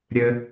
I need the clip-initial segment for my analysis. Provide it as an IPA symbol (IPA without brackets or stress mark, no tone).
ɾʲ